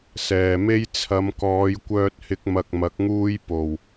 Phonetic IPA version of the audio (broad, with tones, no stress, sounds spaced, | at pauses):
s ɛː˨ m e˥ j t͡sʰ ɐ˨˧ m k ɔː˨˧ j kʷ œː˧ t̚ h ɪ˧ k̚ m ɐ˧ k̚ m ɐ˨˥ k̚ ŋ uː˥ j p o˨˩ w